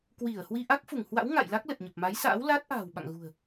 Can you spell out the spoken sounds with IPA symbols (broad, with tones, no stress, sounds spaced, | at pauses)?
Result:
k w i˧˩ ə̯ h w i˧ ʔ a˦˥ k̚ f u˧˩ ŋ h w a̰˧˥ w ŋ a̰˧˨ j l a˦˥ k̚ l ə˨˩ t̚ ɲ ə˨˩ p̚ m a˨˦ j s a̰ː˧˥ w l aː˦˥ t̚ ʔ a̤ː˨˩ w ɓ a̰˧˨ ŋ ɣ ṳ˨˩ ə̯